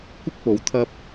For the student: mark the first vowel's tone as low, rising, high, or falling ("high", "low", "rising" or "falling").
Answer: high